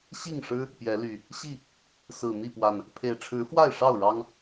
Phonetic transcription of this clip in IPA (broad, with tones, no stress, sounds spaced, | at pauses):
ɕ i˥˨ ŋ ʂ ɻ̩˦ | p j ɛ˨˦ l y˨˩ | ɕ i˥˨ | s ɹ̩˨˩ n̪ i˥˨ p w a˨˩ n | pʰ e˨˩ ɪ̯ ʈ͡ʂʰ ɻ̩˨˦ f w a˥˨ ɪ̯ ʂ ɑ˥˨ ʊ̯ ɻ ɑ˦ ŋ